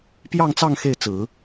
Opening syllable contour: falling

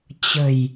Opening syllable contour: low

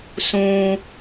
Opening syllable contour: low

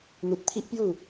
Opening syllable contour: low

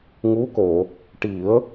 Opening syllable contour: rising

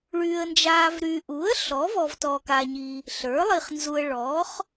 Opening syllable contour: low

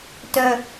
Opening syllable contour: low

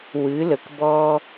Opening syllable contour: rising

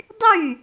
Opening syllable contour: falling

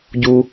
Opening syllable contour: low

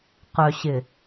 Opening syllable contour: low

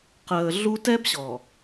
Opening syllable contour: low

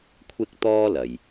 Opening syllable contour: high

